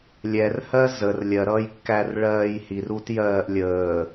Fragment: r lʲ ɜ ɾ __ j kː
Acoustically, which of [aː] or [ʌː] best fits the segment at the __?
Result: ʌː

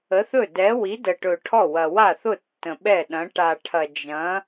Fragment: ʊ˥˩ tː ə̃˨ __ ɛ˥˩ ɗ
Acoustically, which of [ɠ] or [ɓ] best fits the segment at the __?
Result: ɓ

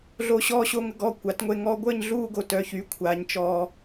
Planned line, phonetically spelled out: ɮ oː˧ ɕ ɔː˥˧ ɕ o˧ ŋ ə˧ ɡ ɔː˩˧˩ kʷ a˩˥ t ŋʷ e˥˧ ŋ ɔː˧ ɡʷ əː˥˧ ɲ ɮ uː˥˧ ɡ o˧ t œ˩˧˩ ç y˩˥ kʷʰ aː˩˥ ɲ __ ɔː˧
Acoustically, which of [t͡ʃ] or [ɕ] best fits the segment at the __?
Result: t͡ʃ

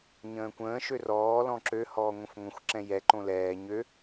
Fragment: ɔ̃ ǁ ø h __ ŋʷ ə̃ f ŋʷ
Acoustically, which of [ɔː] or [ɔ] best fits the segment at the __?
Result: ɔː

